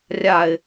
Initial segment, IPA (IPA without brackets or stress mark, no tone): rʲ